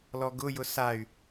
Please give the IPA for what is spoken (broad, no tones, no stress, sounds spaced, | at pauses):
l ɔ ɡ ʊ j ʊ s a y̯